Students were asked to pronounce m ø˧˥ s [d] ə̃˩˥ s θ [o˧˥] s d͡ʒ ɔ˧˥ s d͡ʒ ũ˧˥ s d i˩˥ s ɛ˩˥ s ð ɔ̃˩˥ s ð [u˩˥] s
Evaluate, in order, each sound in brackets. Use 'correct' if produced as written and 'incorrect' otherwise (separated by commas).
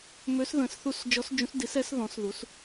incorrect, incorrect, correct